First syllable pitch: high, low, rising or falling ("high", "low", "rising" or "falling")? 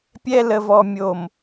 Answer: high